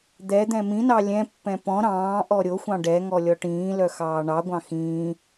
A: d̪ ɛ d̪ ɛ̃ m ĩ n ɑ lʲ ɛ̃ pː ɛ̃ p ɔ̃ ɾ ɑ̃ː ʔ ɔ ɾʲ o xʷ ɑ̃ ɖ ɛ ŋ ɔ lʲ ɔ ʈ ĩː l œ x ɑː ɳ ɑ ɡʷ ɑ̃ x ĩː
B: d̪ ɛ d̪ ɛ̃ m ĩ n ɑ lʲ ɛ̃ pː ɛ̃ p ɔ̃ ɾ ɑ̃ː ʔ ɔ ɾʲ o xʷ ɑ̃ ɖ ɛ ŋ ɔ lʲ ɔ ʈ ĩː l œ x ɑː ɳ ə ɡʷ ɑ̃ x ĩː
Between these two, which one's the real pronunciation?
A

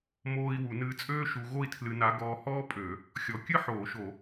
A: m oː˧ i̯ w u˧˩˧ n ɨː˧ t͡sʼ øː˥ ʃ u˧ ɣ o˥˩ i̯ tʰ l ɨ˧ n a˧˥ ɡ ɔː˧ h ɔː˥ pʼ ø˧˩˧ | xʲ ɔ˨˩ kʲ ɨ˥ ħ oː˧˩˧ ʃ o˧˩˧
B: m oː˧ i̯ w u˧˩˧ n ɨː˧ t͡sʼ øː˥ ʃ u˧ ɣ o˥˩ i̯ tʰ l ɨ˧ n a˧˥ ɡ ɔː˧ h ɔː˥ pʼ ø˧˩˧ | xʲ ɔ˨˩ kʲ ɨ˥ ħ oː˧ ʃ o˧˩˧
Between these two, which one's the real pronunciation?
A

